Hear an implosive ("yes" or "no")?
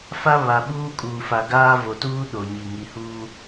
yes